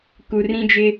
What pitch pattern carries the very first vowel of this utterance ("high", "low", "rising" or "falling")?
low